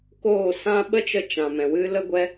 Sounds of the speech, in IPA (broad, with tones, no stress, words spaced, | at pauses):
koː˦˨sã˦ ɓə˦t͡ʃə˧t͡ʃã˨ mɛ̃˨wɨ˦lə˦ɡʷɛ˦